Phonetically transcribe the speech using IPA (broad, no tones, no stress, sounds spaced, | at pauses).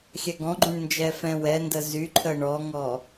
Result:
xʲ ɛ ɡ ɔ̃ ɡ͡ǃ ũ ɳ n d͡ʒ ɛ f ɛ̃ w ɛ n d ə z y ǃʰ ə ɳ ɔ ŋ ɔ